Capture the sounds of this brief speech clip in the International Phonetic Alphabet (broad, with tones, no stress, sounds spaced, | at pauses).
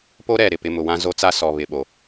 p o˦ ɾ ɛ˦˨ ɾ ɪ˦ p ɪ˨˦ m ʊ˨ w ã˦ z o˦ t͡s a˦ s ɔ˨ β ɪ˨ ɓ o˨